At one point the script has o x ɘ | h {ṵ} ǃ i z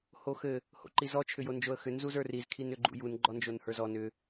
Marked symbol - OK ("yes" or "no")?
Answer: no